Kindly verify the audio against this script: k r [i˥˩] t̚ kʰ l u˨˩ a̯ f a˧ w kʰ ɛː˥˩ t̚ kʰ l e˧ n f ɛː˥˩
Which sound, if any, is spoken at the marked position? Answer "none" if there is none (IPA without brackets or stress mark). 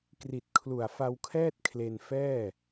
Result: i˨˩